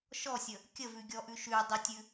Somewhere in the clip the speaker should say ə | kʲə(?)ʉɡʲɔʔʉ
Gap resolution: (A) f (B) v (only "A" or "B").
B